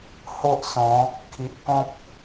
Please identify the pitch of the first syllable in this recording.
high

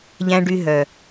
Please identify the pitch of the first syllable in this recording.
low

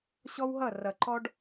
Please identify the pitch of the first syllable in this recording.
high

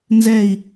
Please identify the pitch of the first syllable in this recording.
falling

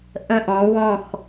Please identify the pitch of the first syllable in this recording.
falling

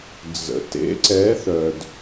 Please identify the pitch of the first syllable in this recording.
low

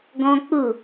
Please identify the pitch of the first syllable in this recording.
high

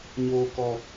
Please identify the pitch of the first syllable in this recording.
low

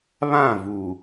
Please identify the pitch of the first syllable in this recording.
falling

